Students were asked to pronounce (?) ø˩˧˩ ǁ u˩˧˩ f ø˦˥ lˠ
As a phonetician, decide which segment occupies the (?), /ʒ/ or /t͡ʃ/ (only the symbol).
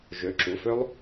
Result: ʒ